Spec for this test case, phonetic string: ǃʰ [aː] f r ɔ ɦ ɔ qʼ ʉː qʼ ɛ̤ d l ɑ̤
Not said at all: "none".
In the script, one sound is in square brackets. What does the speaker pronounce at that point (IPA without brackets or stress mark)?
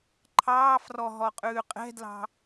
ɑː